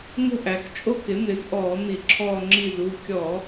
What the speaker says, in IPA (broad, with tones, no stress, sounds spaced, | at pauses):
ŋ ə̤˦˨ ʔ æ˩˧ k t͡ʃʼ o˦˨ k ɪ˩˥ n̪ ɪ˩˥ z ʔ ɔː˧˩˧ n̪ i˧˩˧ ǁʰ ɔː˦˨ ŋ͡ǁ i˦˨ z u˩˧˩ kʲ ɔ˧˩˧